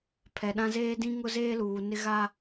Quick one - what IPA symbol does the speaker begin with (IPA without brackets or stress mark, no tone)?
pʰ